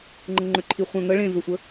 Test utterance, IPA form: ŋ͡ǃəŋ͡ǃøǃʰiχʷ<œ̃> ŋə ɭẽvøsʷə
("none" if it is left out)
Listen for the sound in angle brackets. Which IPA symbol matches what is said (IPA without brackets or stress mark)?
œ̃